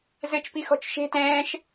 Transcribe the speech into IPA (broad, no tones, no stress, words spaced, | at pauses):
zɘt͡ʃ pixɔ̤t͡ʃʃe̤ tɛ̃ːʃ